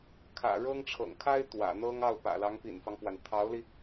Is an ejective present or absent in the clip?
absent